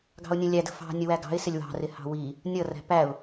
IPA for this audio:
ɡ ɑ̤ ʊ̯ nʲ ə̃ lʲ æ d ə̤ f ɑ̤ nʲ ə w æ ɡ ɑ̤ ɪ̯ s ɪ lʲ w ɑ̤ r ɪ h ɑ̤ w i | nʲ ʌ r æ̤ p æ ʊ̯

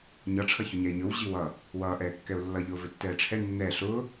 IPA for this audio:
ɲ ʌ ʈ͡ʂʰ ʌ ç ɵ ɲ ɛ ɪ̯ ɲ ɵ w ʑ i w ʌ | w ʌː ʔ ɛː kː ɛ ʊ̯ lː ʌ ʎ ʊː v ɵ tː ɛː ʈ͡ʂʰ ɛ nː ɛ ɬ ʊː

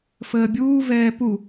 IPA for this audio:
f əː bʲ uː v ɛː p u

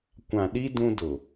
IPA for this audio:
kʷ ã˨ ɗ i˦ d ũ˦ d ʊ˨

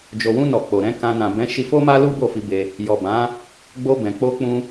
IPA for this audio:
d͡ʒ o˨ w ũ˧ n ɔ˨ k͡p o˨ ɾ ɛ̃˨˦ k ã˧ n ã˨ b ɛ̃˨˦ ʃ i˧ f o˦ m a˦ l u˦ b o˦˨ f i˧ b e˧ | j ɔ˨ b ã˨˦ | ɡ͡b o˧ b ɛ̃˨ k͡p o˧ k͡p ũ˧

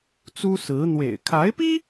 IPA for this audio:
t͡s u˥ s ɹ̩˧˥ n̪ w ḛ˨˩ ɪ̯ kʰ a˧˥ ɪ̯ p i˥

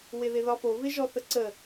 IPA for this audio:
w ɪ ð ɪ ð ɒ f o v ɪ ʒ ɔ θ ə ǀ ə

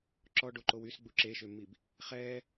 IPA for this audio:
ǁ ɔ ɖ o ǃ o w y s ɡ͡b u ǁ e ʃ ø mː i b | χ ɛ

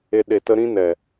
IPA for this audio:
e˧ ɗ e˨ t ə˧ ɾ ĩ˦ n ɛ˨

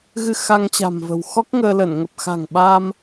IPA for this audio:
ɣ ɨ˧ x a˧ ŋ t͡ɕ a̤˨˩ m v ə̤˨˩ w x ɔ˦˥ k̚ ŋ əː˧ l ə˧˩ n ŋ ə˨˩ p̚ x a̤˨˩ ŋ ɓ a˧ m

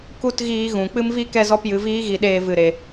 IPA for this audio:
k u˦ t ɣ iː˧ ɣ ũ˨ k͡p ɨ˦ m v i˦ k ɛ˦ z ɔ˦ p j ɨ˧ v iː˦ ɣ i˧ ɗ eː˧ v ɨ˨ ɾ e˨

